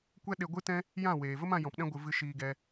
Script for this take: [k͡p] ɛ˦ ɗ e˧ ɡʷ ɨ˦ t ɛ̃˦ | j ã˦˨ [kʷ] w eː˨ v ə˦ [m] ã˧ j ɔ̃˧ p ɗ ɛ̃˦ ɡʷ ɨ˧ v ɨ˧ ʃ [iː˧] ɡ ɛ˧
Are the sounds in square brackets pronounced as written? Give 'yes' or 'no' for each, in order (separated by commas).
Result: no, no, yes, yes